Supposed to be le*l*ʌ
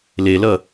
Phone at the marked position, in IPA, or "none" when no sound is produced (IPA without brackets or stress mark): l